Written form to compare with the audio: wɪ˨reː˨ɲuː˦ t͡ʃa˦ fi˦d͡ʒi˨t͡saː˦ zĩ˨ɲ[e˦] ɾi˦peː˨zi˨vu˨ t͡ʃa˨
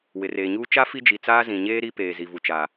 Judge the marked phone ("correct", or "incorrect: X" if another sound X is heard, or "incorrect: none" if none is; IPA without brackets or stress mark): incorrect: eː˦